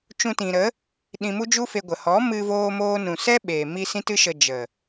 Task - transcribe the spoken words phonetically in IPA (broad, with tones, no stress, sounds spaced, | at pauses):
t͡ʃ ũ˧ t ĩ˨ ɾ ə˨˦ | ɗ ĩ˧ m u˦ d͡ʒ u˦ f e˧ ɡʷ ə˨ h ɔ˨˦ m ɨ˧ v oː˧ m oː˦ n ũ˨ s ɛ˦ ɓ eː˨ m i˧ s ĩ˧ t ɨ˧ ʃ ə˨ d͡ʒ ə˨